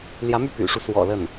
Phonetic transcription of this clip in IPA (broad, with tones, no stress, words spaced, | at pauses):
ljä˧˥my˥˩py̰˨˩ʂu˦ swɔ̰˨˩ lə˥˩n